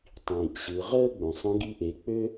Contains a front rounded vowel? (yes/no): yes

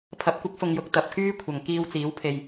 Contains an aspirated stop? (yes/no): yes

